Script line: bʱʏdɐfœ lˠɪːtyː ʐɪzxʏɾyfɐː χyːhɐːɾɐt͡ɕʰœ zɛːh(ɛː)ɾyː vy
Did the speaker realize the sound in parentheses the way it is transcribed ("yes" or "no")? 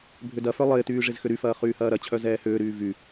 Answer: no